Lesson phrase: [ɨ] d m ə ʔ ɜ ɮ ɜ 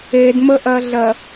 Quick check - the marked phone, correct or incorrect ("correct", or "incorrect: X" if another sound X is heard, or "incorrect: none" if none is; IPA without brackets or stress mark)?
incorrect: e